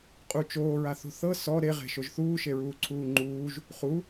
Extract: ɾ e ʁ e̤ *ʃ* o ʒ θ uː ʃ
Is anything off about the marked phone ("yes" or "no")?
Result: no